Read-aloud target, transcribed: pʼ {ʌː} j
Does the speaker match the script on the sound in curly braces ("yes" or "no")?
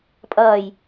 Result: yes